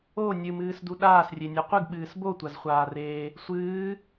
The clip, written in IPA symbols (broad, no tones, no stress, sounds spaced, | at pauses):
o nʲ ɨ m ɨː s d u ɗ aː s rʲ e nʲ a qʷ ɨ ɡ ɓ ɨː s b o tʷ a z χʷ aː r eː | sʷ ɨː